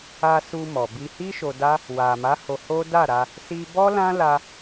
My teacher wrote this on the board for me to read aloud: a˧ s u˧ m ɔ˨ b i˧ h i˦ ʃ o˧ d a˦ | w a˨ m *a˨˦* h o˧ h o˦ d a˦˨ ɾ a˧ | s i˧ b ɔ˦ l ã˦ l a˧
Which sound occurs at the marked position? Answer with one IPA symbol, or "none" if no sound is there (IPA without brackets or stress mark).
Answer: a˨˦